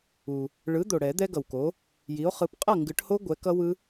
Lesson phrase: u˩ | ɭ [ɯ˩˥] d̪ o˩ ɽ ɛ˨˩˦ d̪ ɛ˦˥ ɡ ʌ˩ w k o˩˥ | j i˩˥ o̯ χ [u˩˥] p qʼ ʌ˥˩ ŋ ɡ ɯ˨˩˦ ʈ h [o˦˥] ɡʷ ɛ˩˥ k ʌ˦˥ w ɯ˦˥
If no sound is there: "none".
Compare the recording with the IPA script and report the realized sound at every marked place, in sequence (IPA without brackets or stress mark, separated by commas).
ɯ˩˥, ɯ˩˥, o˦˥